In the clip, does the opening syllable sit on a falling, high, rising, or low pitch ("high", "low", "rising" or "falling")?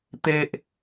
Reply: high